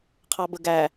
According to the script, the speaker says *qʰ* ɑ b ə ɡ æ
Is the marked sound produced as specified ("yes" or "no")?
yes